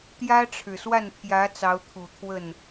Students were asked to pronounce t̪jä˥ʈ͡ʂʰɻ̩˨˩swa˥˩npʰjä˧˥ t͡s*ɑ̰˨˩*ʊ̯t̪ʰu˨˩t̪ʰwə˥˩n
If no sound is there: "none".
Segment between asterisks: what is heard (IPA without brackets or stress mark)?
ɑ˧˥